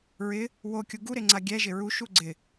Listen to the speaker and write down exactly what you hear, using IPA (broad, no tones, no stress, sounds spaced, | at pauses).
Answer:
ɹ ɪ | w o kʲ u ɡ u ɾ e ŋ͡ǀ a ɡʲ ɛ ʒ ɪ ɹ u ʃ u ɡ͡ǀ ɪ